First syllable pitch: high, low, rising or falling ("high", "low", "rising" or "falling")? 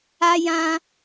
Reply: high